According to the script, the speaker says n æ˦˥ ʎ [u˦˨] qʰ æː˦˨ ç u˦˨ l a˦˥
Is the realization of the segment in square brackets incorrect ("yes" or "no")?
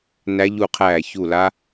no